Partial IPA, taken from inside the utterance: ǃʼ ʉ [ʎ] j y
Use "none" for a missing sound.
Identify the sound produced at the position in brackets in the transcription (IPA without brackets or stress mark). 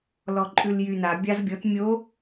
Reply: l